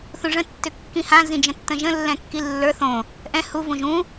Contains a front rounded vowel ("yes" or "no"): yes